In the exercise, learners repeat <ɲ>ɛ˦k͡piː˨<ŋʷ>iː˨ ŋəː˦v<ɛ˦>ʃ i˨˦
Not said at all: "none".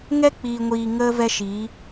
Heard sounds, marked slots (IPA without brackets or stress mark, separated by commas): ŋ, ŋʷ, ɛ˦